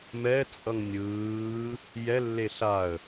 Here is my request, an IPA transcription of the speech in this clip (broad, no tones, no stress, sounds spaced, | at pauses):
m ɛ t͡sʼ ʌ ŋ nʲ ɯː | j ɛ lː e ɬ a ə̯